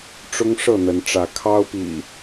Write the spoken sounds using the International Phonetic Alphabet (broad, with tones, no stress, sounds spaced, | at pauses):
ʈ͡ʂ ʊ˦ ŋ ʂ ɤ˥˨ n̪ ə˨˦ n ʈ͡ʂ ä˨˦ kʰ ɑ˦ ʊ̯ p ḭ˨˩